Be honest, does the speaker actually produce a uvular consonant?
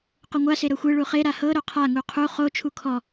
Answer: yes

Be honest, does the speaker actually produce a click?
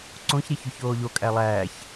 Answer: yes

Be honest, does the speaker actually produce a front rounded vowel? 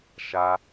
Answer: no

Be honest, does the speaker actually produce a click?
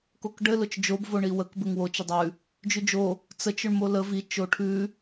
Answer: no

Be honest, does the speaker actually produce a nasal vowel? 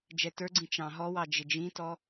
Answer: yes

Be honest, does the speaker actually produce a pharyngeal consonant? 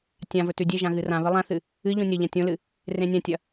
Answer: no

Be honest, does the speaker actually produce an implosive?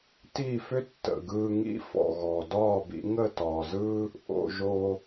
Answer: no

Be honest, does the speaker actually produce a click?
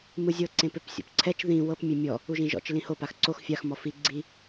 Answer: yes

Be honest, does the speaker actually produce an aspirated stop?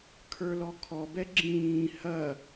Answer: yes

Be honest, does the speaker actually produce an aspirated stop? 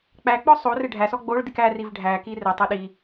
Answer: no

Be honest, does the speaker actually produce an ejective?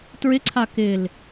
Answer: no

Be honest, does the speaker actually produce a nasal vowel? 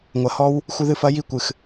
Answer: no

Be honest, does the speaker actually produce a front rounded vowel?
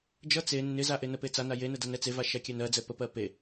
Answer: no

